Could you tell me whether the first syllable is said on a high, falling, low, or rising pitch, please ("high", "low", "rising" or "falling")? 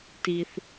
low